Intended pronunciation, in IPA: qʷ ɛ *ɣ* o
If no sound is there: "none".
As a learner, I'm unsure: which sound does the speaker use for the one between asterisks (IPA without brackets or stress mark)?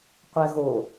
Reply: ɣ